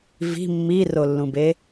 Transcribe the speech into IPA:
v i̤ mː i r o lː ũ b e

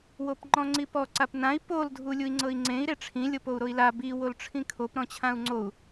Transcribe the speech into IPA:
w o p ŋ͡ǃ ɔ̃ ŋ͡ǀ i p ɔ ǀ a p n ã i̯ p o l dʱ u lʲ u i̯ ŋ͡ǀ ɤ i̯ ŋ͡ǀ ẽ i̯ ɾ e ʈ͡ʂʰ ĩ lʲ ɤ p o u̯ ɾ o i̯ l a b i w o l ʈ͡ʂʰ ĩ kʰ o p ɾ ɔ̃ t͡ɕʰ ã u̯ ŋ͡ǀ o u̯

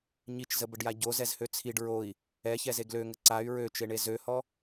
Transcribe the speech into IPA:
ɲ i t͡ʃ z ə b ə ɖ j a ɟ o z ɛ z h ø t͡sʰ i ɖ ɹ o i̯ | ɛ ç ɛ z e ɡ l ø ŋ ə ǀ a y̯ ɹ ø t͡ʃ e ɳ e z ø h ɔ

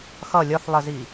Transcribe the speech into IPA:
x ʌ lʲ ɒ θ lˠ ə z i

